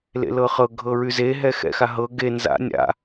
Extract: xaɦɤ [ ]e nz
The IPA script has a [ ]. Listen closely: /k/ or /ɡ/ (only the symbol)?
ɡ